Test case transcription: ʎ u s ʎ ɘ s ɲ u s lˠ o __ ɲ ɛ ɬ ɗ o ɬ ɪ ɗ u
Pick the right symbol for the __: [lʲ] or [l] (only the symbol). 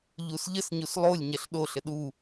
lʲ